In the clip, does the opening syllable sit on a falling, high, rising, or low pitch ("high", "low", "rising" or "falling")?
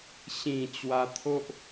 low